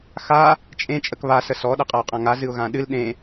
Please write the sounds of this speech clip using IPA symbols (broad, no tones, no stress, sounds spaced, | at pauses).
x a | t͡ʃʼ ẽ t͡ʃʼ ə k β a s ə s ɔ ɗ ə qʼ a ʊ̯ qʼ ã ŋ a z ɨ ʊ̯ ɣ ã ɗ ɨ l ɗ ẽ